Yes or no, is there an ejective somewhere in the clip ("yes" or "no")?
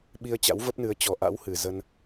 no